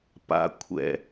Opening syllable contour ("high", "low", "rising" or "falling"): low